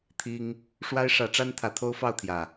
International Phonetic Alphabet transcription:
t̪ʰ i˦ ŋ | ʂ w a˦ ɪ̯ ʂ ä˨˦ ʈ͡ʂ a˦ n t̪ʰ ä˨˦ t̪ʰ o˦ ʊ̯ f ɑ˥˨ ʊ̯ t̪ʰ j ä˨˩

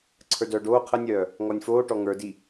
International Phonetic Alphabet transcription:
ǀʰ ə˞ d œː ɖ oː qʰ ə nʲ œː | ŋ ɔ nʲ f oː ʈ ɔ ŋ ə˞ d i

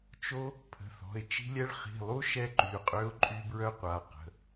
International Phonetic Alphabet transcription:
t͡ʃ o˦ | pʰ ə̤˩˧˩ θ ɔ̤˩˧˩ ɪ̯ t͡ʃ i̤˦ lʲ ɛ˦ ɭ χ i̤˩˧˩ lˠ u˦ ʃ ɛ˦ ǃ y˩˧˩ qʼ ø˦ ʊ̯ ǃʼ y˦ b ɹ œ˦ qʷ a˩˧˩ q ə̤˩˧˩

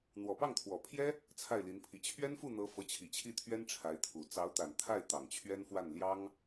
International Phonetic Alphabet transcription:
n̪ w ɔ˨˩ p ɑ˥˩ ŋ t̪ʰ w ɔ˨˩ pʰ j ɛ˥ | t͡sʰ a˥˩ ɪ̯ l i˧˥ n pʰ i˧˥ t͡ɕʰ ɥ ɛ˥ n f u˥˩ n̪ ɤ˧˥ f ɤ˧˥ t͡ɕʰ i˨˩ t͡ɕʰ i˥˩ t̪ʰ ɥ ɛ˥ n ʈ͡ʂʰ a˧˥ ɪ̯ t̪ʰ u˨˩ t͡s ɑ˧˥ ʊ̯ t̪ a˨˩ n t̪ʰ a˥˩ ɪ̯ t̪ ɑ˨˩ ŋ t͡ɕʰ ɥ ɛ˥ n f w a˥˩ n l j ɑ˥ ŋ

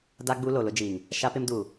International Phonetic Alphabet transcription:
d a˦ ɡ͡b u˦ l o˨ l ʊ˦ d͡ʒ iː˨ ŋ | ʃ a˦ p ɪ˦ m d uː˨

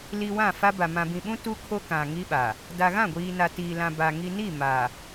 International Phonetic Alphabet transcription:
l i˨ w ã˦˨ f a˦ b a˨ m ã˨ b ĩ˨ ɓ ũ˦ t u˦ kʰ o˦ k ã˨ ŋ i˦ ɓ a˨ | d a˨ ɣ ã˦˨ ɡʷ iː˨ n a˨ t iː˨ l ã˨ b a˨ ŋ i˨ n i˦˨ m a˨

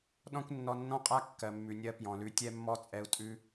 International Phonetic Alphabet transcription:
ɗ ɔ̃˦ kʷ nː ɔ˧ nː ɔ̃˦ qʼ a˦ kː ɜ˨ mː ʉ˨ nʲ ɜ˧ p j ɔ̃˨ l ʉ˧ tʲ ɛ˦ mː ɔ˦ t͡sʼ ɛ˧ u̯ tʼ ʉ˦

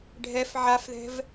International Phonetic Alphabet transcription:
ɖʱ ɛ f ʕ a f ð ɛ̤ v

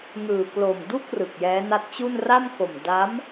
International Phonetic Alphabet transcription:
ŋ ɯː˨˩ k l o˨˩ m d u˥˩ k̚ r ɯ˨˩ k̚ j ɛː˦˥ n a˦˥ t̚ t͡ɕ u˥˩ n r a˥˩ m k o˨˩ m d a˦˥ m

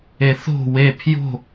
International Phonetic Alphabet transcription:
e θ o̤ w e pʰ j o̤

